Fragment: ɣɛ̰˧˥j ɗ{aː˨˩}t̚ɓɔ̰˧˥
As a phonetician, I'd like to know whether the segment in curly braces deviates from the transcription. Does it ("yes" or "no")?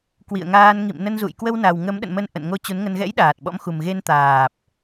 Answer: no